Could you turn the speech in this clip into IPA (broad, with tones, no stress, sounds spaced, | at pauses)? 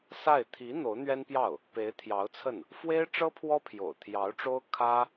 s a˥˩ ɪ̯ t̪ʰ i˧˥ n̪ o˧˥ ʊ̯ n̪ ɥ ɛ˥ n p j ɑ˥˩ ʊ̯ | p e˧˥ ɪ̯ t̪ʰ j ɑ˧˥ ʊ̯ t͡sʰ ə˥˩ n | f w e˥ ɪ̯ ʈ͡ʂ ɤ˥ pʰ w ɔ˥ pʰ j o̰˨˩ ʊ̯ t̪ʰ j ɑ˧˥ ʊ̯ ʈ͡ʂ o˥ ʊ̯ kʰ ä˥